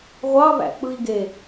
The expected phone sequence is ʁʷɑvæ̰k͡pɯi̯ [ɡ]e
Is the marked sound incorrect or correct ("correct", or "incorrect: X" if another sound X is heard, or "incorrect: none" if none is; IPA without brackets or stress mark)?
correct